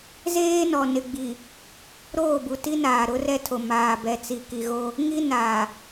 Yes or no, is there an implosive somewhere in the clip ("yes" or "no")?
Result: no